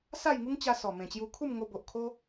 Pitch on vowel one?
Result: falling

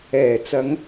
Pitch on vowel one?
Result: low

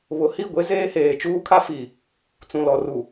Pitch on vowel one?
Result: rising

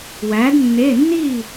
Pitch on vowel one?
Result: rising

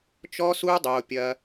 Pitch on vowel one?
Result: high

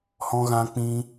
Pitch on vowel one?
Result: high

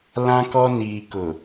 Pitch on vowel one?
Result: high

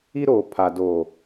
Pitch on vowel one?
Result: high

